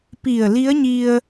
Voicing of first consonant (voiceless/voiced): voiceless